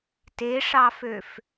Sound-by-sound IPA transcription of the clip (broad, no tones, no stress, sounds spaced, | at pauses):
t e ʂ ɑ f ø f